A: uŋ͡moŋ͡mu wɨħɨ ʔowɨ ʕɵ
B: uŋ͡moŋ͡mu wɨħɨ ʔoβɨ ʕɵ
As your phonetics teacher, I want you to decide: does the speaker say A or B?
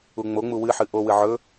A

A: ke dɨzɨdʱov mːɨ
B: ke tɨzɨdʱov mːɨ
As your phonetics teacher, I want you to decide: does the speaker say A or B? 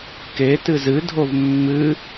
B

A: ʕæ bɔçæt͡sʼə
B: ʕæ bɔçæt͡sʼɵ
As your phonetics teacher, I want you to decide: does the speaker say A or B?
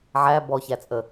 A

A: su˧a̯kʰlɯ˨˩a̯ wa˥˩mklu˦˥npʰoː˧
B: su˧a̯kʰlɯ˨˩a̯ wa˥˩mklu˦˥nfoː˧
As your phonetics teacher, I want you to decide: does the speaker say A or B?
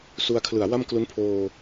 A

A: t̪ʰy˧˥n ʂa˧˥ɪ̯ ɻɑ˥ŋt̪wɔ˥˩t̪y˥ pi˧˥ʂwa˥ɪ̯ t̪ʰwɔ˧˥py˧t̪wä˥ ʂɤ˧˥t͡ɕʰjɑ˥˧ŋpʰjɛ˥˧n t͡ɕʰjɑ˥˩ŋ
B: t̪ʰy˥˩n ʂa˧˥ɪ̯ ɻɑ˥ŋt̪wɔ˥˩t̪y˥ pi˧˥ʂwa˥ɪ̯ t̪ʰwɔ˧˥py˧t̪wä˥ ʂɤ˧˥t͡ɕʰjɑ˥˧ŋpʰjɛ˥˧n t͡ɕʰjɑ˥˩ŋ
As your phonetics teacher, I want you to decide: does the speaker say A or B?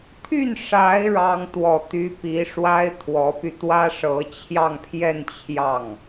B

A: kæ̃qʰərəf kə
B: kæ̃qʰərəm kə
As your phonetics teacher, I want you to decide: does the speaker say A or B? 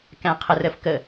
A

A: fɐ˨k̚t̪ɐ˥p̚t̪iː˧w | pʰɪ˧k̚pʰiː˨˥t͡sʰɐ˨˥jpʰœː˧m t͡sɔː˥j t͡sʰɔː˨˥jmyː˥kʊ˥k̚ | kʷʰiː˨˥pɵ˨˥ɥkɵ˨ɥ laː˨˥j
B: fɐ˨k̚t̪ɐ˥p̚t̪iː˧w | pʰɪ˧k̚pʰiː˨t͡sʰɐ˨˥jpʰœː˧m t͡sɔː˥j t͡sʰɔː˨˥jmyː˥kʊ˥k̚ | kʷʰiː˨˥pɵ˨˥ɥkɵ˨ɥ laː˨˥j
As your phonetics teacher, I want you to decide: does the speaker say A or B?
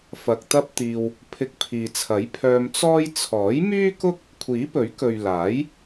B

